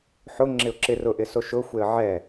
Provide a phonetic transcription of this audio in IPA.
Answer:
ħʊ ŋ͡ǁɪʊ̯ǁɪ rʊʔɪ soʃʊxʷeə̯ ʕɛ

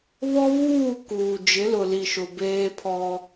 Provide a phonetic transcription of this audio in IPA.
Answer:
βɔ˦βuː˦˨kuː˨ d͡ʒɪ˨˦lʊ˨li˨ʃʊ˨ beː˦pʰɔ˦

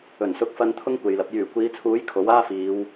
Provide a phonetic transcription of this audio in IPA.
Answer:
ɵ˨˩nsʊ˨˥k̚fɐ˧n t̪ʰʊ˥ŋkʷe˨jlɐ˨˥p̚ jyː˨˩kʷiː˨˧t͡sʰuː˨˥j kʰo˨˥waː˥ fiː˨˧w

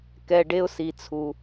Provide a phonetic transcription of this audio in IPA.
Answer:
kɛ˧ɖe˥ʊ̯si˧t͡sʰu˧

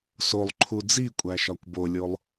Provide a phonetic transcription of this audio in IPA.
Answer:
solˠǃʰu d͡zikʷʼæʃɒkʷ bolʲolˠ

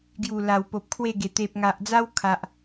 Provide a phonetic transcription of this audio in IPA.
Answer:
ɡju˨˩la˨˩wpo˨p̚ kʰwe˥˧ɡe˨˩ t̪e˨p̚ŋa˨ʔd͡za˦w kʰa˨ʔ

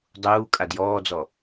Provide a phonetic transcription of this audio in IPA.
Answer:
dˤuː kʼadjɔːd͡zɔ

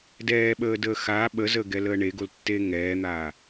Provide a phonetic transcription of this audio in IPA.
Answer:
dɛːɓəːdəː xaː ɓəzəːɡɛləː ɳeɡoltːeː ŋɛːn̪aː

